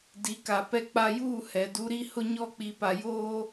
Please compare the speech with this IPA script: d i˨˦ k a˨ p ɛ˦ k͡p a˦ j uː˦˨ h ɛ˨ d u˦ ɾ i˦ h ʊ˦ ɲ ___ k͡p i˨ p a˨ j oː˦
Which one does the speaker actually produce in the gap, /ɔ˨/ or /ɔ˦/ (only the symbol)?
ɔ˦